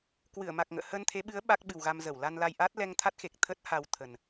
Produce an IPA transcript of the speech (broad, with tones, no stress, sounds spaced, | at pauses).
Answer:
k w ɨ˧˩ ə̯ m a˨˩ k̚ ŋ ə̰ː˧˨ h ə˧ n t̪ʰ e˨˦ ɓ ɨ˨˦ ə̯ ɓ a˦˥ k̚ ɓ ɨ˨˩ w ɣ a˧ m z ə˧˩ w l a˧ n l a˧ j ʔ a˦˥ t̚ l ɛ˧ ŋ t̪ʰ a˦˥ t̚ x e˨˩ k̚ t̪ʰ ə˦˥ t̚ h a˧ w t̪ʰ ə˨˩ n